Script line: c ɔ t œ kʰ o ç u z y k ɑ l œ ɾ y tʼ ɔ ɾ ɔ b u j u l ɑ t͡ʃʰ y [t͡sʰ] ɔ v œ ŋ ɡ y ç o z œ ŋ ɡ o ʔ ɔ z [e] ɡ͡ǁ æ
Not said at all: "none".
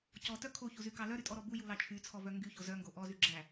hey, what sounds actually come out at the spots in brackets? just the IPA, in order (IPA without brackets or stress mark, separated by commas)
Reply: t͡sʰ, y